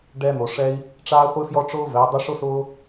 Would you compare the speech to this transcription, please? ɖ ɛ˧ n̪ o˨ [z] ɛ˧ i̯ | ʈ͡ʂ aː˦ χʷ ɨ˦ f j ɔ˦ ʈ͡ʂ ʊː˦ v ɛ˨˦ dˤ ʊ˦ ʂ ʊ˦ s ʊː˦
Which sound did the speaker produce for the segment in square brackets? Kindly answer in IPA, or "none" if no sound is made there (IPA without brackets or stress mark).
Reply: ʂ